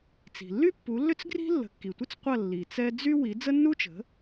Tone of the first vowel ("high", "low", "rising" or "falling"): low